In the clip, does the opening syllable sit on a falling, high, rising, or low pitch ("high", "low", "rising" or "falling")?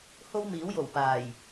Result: high